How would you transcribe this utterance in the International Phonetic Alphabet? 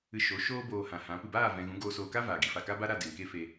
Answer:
ɨ˧ ʃ o˨˦ ʃ oː˦ b oː˧ h ã˨ h ã˨˦ p ɨ˨ b aː˦˨ v ɛ̃˧ ɣ ũ˨˦ ɡ oː˧ s oː˧ k a˦ v aː˨ ɡ i˧ f a˨ k a˦ b a˦ ɾ a˦˨ d e˨ ŋ k e˦ f e˧

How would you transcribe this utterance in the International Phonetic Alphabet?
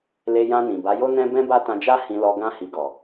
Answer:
l e˧ j ã˧ n ĩ˨ b a˨˦ j o˦ n ɛ̃˦ b ɛ̃˦ b a˦ t ã˧ d͡ʒ a˦ h ĩ˧ l ɔ˧ ɡ ã˦ h i˧ ɡ ɔ˨

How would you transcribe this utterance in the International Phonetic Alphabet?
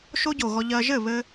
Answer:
ʃ o˦ ɟ o˨ ɣ ɔ˧ ʎ ɜ˧ ʒ ɘ˦˨ β ɘ˧

